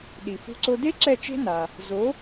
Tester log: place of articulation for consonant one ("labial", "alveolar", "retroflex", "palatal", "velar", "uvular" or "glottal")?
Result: alveolar